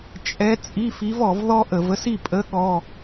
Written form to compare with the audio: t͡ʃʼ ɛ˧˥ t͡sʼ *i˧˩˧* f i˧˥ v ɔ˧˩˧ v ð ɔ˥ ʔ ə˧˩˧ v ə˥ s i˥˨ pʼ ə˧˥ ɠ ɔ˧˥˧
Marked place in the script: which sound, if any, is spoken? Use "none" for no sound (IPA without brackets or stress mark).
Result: i˧˥˧